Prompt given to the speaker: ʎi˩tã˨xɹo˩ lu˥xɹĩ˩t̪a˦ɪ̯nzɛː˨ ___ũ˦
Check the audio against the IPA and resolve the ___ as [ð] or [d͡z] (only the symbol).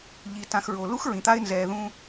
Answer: ð